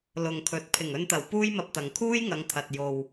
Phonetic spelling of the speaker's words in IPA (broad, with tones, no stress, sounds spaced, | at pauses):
l ʊ˨ ŋ kʰ ɵ˨˥ t̚ pʰ ɪ˨˩ ŋ ɵ˧ n t̪ ɐ˨˩ w p uː˥ j m ɐ˧ p̚ t̪ ɐ˨ ŋ kʰ uː˥ j ŋ ɐ˨˧ ŋ t̪ʰ ɐ˨ t̚ j o˨ w